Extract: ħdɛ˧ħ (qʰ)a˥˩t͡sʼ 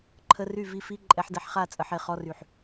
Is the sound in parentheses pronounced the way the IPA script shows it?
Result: no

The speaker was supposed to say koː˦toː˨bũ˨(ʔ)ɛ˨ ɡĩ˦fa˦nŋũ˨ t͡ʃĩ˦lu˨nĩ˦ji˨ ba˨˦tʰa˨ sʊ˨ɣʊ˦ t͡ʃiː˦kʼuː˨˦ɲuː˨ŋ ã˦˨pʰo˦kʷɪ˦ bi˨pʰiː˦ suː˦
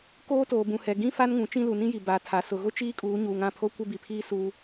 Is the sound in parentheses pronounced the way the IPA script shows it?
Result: no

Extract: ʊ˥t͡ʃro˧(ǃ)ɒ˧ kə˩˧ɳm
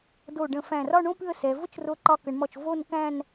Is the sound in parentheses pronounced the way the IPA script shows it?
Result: yes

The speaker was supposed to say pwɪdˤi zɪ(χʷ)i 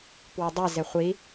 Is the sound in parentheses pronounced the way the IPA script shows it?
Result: yes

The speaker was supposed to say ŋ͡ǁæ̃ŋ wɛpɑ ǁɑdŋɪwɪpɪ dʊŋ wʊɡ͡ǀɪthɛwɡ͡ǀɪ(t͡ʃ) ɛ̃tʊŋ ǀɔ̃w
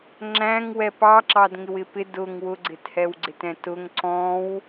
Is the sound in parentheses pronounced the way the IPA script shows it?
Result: no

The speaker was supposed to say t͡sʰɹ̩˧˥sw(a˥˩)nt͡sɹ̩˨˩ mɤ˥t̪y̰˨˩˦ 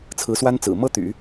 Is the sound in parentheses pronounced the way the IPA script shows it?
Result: no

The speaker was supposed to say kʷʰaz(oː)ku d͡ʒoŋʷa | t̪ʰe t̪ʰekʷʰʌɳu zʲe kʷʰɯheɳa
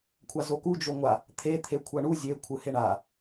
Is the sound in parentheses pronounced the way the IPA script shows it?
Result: no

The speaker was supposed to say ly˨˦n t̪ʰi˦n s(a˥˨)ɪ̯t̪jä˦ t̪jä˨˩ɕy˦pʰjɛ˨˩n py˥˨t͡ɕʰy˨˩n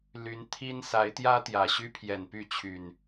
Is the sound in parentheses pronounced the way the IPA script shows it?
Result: no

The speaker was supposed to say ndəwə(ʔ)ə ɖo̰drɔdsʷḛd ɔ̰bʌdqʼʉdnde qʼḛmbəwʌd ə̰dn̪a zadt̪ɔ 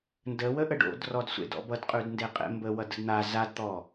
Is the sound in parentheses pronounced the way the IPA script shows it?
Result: yes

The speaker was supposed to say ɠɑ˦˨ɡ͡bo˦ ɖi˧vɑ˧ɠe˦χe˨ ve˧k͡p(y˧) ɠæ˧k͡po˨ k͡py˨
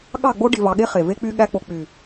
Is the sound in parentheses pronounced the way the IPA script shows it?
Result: yes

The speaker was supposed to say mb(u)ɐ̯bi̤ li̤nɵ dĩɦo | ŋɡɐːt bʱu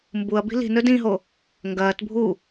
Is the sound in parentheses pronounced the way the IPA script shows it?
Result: yes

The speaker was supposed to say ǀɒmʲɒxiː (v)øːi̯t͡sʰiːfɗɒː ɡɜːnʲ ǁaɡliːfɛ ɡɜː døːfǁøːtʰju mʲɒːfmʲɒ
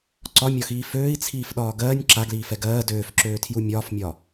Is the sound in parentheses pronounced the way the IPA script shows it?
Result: no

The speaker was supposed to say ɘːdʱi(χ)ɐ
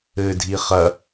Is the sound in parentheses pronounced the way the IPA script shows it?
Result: yes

